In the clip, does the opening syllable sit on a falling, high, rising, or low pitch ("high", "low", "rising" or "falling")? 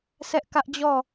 high